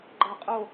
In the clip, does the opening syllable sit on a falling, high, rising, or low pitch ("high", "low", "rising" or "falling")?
falling